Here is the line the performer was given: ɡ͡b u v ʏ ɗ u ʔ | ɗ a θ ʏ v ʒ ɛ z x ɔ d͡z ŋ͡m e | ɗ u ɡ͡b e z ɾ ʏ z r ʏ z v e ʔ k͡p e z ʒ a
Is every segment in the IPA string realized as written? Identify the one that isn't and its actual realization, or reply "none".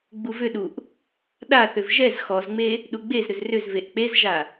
d͡z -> z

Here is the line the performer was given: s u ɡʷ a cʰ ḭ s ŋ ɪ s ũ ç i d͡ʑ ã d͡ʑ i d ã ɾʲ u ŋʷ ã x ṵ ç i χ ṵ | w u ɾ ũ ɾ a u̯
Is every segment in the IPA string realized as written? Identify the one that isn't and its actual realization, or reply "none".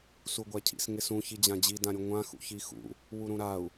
χ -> x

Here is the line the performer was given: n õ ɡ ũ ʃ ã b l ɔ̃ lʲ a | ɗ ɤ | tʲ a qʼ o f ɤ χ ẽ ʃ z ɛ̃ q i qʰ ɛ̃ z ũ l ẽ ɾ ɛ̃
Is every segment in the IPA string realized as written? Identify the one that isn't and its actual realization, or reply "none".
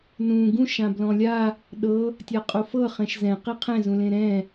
õ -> ũ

